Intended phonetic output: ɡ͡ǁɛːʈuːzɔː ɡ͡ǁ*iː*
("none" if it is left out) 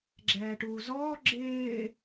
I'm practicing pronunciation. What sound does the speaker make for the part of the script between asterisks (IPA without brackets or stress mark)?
ɪː